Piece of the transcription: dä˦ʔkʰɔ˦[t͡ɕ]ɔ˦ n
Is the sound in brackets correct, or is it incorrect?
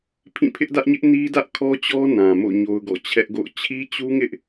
correct